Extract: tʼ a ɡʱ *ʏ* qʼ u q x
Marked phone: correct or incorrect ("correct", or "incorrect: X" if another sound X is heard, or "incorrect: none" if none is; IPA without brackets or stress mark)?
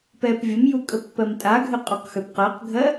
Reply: correct